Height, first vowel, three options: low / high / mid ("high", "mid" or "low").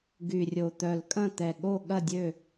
high